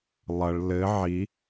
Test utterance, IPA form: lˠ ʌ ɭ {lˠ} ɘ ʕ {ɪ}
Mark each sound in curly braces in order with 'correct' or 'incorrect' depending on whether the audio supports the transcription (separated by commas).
incorrect, incorrect